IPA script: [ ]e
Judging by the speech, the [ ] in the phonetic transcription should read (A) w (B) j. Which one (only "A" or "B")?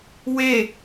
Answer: A